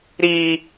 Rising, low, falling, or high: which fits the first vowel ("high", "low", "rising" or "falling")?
high